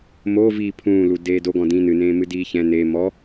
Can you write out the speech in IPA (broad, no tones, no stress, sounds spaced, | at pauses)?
m o v iː pʰ ũː l u d eː d o ɡ ɔ̃ d ĩ n ɨ n ẽː m ɨ d iː ç ɛ̃ n e m ɔ